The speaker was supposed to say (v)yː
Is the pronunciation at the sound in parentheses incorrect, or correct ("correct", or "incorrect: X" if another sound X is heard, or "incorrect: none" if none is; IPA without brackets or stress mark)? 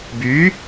incorrect: b